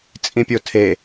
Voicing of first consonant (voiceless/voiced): voiceless